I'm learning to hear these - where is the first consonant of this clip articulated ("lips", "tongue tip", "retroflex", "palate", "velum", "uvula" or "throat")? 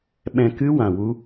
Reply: lips